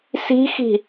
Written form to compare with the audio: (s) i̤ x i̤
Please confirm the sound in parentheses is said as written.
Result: yes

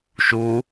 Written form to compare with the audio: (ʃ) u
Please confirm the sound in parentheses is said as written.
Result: yes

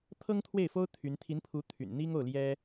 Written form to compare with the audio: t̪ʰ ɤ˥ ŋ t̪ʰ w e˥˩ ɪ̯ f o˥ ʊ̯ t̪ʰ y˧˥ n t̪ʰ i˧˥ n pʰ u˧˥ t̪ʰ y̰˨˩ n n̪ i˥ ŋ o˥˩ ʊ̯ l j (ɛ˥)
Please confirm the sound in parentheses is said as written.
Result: yes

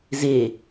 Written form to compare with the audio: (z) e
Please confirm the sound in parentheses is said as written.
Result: yes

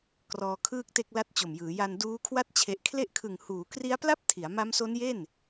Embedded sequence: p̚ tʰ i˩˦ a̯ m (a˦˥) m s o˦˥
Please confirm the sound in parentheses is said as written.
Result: yes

